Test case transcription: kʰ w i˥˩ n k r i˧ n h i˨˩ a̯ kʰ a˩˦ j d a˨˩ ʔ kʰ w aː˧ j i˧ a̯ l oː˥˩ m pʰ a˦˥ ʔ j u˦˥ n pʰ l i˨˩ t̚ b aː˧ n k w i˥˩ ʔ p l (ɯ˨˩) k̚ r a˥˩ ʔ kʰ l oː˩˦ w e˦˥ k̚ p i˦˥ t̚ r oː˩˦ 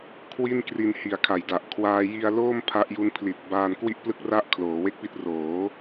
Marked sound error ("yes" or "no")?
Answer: yes